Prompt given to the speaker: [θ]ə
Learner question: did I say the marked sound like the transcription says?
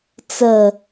no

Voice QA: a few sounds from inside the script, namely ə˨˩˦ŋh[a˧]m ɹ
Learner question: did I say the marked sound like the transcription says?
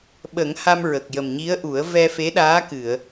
yes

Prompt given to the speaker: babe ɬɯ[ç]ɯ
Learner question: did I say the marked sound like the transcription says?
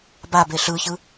yes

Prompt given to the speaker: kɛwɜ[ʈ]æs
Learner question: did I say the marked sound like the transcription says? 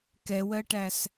yes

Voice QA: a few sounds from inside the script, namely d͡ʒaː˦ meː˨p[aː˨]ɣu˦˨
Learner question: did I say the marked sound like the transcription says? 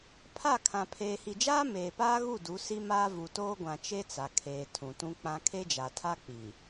no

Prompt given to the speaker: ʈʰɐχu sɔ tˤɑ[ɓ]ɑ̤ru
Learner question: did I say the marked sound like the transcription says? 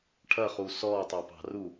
no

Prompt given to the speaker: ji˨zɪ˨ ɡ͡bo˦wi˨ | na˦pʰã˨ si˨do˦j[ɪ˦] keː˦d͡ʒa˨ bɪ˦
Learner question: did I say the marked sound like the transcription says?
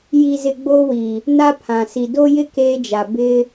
yes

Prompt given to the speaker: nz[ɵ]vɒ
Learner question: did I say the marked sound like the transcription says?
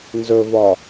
yes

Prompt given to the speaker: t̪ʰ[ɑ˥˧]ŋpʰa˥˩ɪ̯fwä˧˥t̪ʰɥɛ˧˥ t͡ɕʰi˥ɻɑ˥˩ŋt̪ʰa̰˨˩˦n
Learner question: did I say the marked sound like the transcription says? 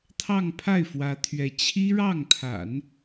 yes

